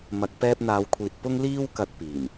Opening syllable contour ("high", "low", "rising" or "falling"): low